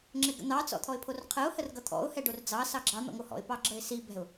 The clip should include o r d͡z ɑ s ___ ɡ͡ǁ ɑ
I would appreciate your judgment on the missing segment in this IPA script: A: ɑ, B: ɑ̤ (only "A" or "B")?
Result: A